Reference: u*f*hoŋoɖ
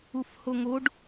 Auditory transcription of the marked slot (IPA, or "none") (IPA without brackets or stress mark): f